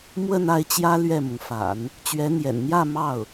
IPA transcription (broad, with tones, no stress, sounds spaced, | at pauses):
m w ə˥˧ n a˥˩ ɪ̯ t͡ɕ j ä˥ l ɥ ɛ˥˩ m ʊ˩ ŋ f a̰˨˩˦ n | t͡ɕ ɥ ɛ˧˥ n̪ j ɛ̰˨˩ n n̪ j ä˥˧ m ɑ˥˩ ʊ̯